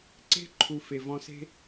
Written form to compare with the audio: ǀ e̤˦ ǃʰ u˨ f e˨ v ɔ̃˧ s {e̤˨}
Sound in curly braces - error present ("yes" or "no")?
yes